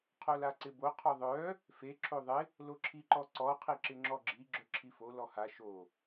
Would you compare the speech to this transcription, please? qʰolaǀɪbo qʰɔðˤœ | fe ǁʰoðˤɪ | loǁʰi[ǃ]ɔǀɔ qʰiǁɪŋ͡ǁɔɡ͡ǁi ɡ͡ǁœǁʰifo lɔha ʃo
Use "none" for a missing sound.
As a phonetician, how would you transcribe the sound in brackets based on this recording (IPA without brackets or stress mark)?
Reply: ǃ